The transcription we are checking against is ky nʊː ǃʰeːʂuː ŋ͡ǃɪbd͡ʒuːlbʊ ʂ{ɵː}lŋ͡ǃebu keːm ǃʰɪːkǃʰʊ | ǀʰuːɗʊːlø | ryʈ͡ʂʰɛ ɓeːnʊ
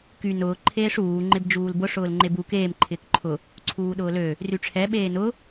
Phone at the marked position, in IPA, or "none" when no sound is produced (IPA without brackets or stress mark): ʊː